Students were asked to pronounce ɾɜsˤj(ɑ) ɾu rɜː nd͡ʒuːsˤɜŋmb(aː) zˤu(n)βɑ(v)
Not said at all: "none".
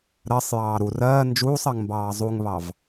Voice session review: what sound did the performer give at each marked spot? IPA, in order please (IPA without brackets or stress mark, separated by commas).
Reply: ɑː, ɑː, ŋ, v